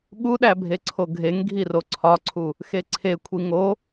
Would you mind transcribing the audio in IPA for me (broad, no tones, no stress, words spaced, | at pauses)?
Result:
ɠuɗæbʱe ǀʰoɡʱeŋ ɡʱiroǀʰɒǀʰu | xeǀʰekʷʰi ŋo